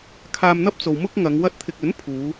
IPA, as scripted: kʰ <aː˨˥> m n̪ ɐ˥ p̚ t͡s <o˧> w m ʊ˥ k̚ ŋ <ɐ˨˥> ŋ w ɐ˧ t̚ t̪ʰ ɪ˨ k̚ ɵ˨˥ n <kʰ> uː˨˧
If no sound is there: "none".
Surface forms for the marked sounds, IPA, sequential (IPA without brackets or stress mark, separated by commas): aː˧, o˧, ɐ˨˧, pʰ